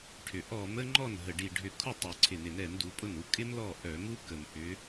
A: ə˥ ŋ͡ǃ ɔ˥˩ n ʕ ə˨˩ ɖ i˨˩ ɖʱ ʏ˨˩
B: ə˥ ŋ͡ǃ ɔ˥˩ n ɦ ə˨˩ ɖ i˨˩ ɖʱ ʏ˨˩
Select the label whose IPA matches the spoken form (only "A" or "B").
B